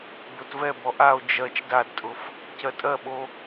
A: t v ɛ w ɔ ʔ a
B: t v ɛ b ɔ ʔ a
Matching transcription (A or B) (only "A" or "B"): B